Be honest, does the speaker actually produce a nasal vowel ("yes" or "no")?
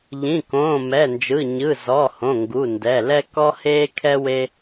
yes